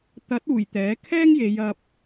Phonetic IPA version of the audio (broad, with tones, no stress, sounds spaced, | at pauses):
t̪ ɐ˨˥ t̚ uː˨˩ j t̪ ɛː˨˥ kʰ ɛː˥ ŋ j e˨˧ j ɐ˧ p̚